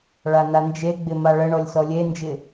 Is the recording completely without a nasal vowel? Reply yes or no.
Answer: yes